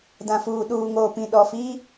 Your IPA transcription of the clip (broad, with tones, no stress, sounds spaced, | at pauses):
d ã˨ f uː˨ ɗ uː˨ ŋ oː˨ p ĩ˨ ɗ ɔ˨ f iː˦